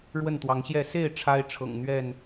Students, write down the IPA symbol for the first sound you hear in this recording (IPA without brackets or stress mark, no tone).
ɻ